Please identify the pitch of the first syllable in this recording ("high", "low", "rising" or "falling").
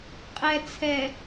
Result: low